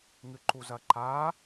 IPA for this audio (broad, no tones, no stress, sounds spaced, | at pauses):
ŋ ɨ ǃ u z ɐ ǃ a